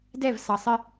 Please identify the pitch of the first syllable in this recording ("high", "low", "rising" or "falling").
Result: falling